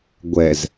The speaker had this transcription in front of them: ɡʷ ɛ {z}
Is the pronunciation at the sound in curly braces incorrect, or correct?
correct